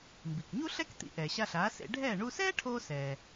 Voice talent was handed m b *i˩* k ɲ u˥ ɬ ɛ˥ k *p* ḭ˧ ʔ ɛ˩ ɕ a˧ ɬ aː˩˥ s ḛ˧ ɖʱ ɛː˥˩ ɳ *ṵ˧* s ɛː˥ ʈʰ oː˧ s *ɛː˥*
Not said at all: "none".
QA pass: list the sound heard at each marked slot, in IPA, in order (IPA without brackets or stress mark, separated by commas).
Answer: i˩, t̪, u˧, ɛː˩